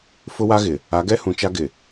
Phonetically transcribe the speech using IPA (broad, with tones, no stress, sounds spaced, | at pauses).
f ʊ˦ w a˦ ɣ ɪ˨ | a˨˦ ɡ ɛ˦ h ũ˨ t͡ʃ a˦ ɡ ɪ˨